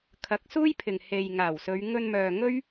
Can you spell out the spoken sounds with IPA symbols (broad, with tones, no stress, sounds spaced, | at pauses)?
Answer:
kʰ ɐ˨˥ k̚ s uː˥ j pʰ ɪ˨ ŋ h e˨ j ŋ aː˨˩ w s ɵ˨˧ ɥ ŋ ɵ˧ n m œː˨ ŋ ɵ˥ ɥ